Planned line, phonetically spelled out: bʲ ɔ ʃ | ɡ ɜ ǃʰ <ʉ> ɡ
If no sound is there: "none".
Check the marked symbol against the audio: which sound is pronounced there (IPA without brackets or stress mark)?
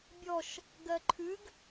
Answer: ʉ